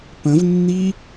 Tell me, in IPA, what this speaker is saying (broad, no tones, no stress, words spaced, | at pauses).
pə̃vnːi